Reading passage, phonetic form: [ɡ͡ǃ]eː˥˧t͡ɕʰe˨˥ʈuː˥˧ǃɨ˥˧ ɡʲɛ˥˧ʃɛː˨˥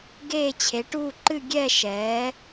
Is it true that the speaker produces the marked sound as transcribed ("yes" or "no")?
no